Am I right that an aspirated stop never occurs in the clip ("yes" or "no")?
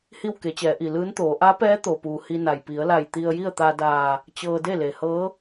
yes